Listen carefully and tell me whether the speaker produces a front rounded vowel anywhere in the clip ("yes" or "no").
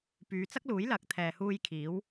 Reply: yes